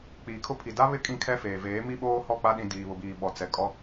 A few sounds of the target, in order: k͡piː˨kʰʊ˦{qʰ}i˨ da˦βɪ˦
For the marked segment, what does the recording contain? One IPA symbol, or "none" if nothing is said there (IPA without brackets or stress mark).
pʰ